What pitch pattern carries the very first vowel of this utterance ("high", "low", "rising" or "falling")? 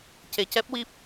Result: low